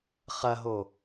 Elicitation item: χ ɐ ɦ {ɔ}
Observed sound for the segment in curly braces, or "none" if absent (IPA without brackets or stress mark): o